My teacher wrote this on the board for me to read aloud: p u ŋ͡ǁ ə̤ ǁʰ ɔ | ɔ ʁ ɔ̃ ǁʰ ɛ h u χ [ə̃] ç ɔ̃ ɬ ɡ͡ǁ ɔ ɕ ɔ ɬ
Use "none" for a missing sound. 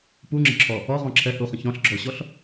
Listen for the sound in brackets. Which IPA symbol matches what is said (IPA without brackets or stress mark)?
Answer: ə̃